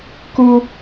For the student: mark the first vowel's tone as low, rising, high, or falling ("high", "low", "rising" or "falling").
high